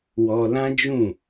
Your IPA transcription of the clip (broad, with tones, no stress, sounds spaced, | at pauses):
w ɔ˧ l ã˦ d͡ʒ ũ˦˨